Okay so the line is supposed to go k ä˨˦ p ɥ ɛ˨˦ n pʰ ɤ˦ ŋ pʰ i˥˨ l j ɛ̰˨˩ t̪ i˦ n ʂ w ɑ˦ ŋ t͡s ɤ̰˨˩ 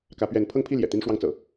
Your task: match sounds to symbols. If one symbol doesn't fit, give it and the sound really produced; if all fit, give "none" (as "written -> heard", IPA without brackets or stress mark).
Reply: none